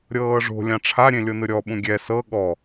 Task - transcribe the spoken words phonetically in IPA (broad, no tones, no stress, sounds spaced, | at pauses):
ɾʲ ɤː ʐ o̤ lʲ ã ʈ͡ʂʰ a ɾʲ ẽ lʲ o n ɯ ɾʲ ɔ ɓ ũ ɡʲ ɛ s ɤ ɠ ɔ